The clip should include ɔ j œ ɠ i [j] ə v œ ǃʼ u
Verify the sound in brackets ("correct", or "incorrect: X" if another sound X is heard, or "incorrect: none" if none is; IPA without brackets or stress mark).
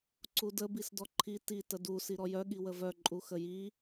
incorrect: w